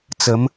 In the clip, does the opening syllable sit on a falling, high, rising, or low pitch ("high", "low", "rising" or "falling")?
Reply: rising